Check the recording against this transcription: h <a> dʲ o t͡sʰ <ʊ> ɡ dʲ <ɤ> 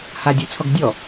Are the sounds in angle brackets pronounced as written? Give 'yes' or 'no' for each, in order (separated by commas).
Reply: yes, no, no